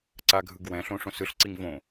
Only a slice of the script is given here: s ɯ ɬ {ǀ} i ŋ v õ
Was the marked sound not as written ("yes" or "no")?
no